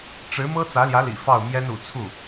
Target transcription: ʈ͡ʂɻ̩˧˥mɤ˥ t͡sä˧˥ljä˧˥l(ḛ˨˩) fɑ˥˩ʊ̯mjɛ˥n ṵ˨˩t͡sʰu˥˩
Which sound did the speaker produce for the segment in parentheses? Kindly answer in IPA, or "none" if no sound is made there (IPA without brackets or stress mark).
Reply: ḭ˨˩